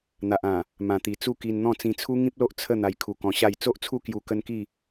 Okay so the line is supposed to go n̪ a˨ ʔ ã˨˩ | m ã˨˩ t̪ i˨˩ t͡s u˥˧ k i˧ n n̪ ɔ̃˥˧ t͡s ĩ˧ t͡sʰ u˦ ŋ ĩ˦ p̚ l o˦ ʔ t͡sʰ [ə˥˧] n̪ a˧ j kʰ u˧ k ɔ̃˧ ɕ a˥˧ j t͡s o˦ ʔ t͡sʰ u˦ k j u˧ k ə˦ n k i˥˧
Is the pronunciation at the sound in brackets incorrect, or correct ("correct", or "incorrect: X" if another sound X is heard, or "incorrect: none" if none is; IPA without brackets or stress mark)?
correct